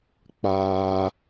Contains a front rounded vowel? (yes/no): no